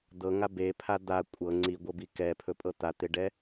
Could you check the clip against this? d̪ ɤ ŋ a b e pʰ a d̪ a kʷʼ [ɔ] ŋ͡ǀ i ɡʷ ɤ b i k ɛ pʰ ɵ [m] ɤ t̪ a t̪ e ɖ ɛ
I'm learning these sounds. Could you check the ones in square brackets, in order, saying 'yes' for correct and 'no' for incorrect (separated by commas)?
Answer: no, no